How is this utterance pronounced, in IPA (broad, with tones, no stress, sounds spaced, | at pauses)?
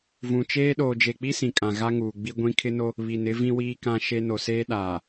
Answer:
v ũ˨ t͡ʃ eː˦ ɗ oː˨ d͡ʒ e˨ k͡p i˦ s ĩ˨ kʼ ã˨ ɣ a˦ ŋ uː˨ ɡ͡b i˦ ɡʷ ĩ˦ kʰ ɪ˦ n o˦ | β i˨ n ɪ˦ v ĩ˦ w iː˦ k ã˦ ʃ e˦ n o˨ s eː˦ ɗ aː˨